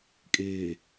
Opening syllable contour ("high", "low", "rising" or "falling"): low